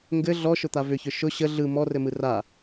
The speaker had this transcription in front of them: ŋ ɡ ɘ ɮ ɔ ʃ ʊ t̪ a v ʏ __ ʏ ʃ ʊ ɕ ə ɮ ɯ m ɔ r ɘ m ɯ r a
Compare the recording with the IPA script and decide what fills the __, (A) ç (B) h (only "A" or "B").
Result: A